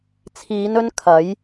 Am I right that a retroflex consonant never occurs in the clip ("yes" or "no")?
yes